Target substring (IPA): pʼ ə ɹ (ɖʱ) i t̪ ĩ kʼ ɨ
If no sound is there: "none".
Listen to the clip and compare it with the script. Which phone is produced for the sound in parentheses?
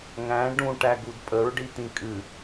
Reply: ɖ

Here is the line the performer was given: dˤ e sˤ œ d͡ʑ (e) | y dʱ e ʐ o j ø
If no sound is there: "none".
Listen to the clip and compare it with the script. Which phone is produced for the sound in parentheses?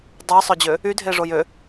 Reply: ø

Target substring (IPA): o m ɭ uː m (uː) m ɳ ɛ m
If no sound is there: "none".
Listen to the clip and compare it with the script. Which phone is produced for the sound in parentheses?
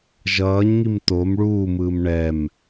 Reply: ɯː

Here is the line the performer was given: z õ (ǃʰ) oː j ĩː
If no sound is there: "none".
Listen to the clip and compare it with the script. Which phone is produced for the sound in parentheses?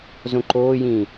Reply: ǃ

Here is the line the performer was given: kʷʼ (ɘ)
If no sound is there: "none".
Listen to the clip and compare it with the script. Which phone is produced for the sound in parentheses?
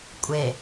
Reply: e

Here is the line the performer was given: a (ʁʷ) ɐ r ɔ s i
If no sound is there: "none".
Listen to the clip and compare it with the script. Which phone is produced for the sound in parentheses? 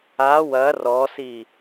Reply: w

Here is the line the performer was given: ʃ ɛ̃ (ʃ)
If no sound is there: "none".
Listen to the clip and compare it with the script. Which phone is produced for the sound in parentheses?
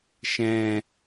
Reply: none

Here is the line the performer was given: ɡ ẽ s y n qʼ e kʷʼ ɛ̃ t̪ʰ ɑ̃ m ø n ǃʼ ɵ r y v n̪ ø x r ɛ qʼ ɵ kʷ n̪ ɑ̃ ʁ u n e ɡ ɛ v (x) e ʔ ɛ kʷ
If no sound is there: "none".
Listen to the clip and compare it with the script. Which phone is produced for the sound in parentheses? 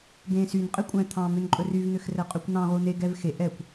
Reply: x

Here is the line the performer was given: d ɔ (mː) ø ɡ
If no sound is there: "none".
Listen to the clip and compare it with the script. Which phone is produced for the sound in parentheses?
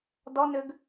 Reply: n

